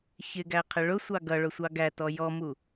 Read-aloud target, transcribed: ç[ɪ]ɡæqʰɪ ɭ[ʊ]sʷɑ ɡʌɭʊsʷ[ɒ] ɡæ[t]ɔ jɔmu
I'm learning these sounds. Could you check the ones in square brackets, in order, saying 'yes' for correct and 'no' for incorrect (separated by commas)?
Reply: yes, yes, no, yes